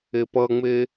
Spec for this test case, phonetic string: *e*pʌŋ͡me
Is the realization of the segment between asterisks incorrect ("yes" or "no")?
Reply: no